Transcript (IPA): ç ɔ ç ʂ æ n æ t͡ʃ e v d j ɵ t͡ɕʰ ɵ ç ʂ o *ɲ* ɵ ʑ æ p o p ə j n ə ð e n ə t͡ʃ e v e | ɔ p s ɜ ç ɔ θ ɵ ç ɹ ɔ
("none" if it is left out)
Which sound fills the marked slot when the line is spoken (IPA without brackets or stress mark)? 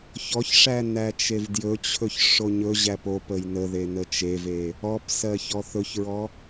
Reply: ɲ